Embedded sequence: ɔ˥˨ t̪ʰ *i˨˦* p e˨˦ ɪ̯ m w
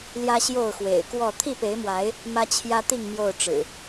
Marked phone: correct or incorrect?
incorrect